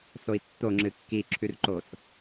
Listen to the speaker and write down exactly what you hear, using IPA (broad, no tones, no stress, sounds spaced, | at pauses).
s o i̯ tː o ŋ͡ǁ ɨ kː i ǁʰ ʉ r ǃ o s